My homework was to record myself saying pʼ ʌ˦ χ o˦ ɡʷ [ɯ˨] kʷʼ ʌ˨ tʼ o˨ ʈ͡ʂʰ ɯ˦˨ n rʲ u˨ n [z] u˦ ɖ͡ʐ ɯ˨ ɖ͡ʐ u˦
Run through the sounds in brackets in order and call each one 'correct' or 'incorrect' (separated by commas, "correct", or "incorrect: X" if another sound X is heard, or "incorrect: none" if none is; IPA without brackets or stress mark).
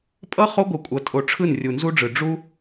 correct, correct